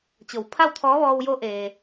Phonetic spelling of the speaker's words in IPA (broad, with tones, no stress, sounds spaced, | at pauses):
t͡ɕ o˩ w pʰ a˥˨ w t̪ʰ ɔː˧˥ ʋ ɔː˧ w j o˧˥ ʔ eː˩